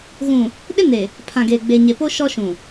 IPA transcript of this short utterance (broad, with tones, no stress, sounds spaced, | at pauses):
ɣ ũ˨ | ɗ ɪ˦ n e˨ | pʰ ã˨ ɡ eː˨ ɡ͡b e˨ ɲ e˨ p o˦ ʃ ɔ˦ ʃ ũ˨